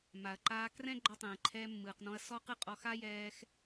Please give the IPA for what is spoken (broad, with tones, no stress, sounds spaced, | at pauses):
m a˩ ɐ̯ ǃ aː˧ k r ɛ̃˥ ɡ͡ǃ ɔ˧ tˤ ɛ̃ː˩ ǃʰ ɛː˧ mː ɯː˩ q n ɔ̃˧ ɐ̯ s ɔ˥ q ɯ˥ qʼ ɔ˧ x a˥ j ɛː˧ x